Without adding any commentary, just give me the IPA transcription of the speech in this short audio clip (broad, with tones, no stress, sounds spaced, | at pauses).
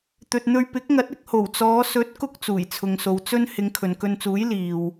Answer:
t̪ ɵ˨ t̚ n̪ ɵ˧ ɥ p ɪ˨˥ k̚ ŋ ɐ˨˥ t̚ ɪ˧ k̚ h o˨˩ w t͡s ɔː˨˧ s ɵ˨˥ t̚ k ʊ˧ k̚ t͡s uː˨˩ j t͡sʰ ʊ˨ ŋ s o˨ w t͡s ɵ˥ n h ɪ˨˧ ŋ kʰ ɵ˨ n k ɵ˧ n t͡s uː˨˥ j l iː˨ w